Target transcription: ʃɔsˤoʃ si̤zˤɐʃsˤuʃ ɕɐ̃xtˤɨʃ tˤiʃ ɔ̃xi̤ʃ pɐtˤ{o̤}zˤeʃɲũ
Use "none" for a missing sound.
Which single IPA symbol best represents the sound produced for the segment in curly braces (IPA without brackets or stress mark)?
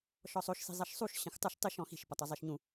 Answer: o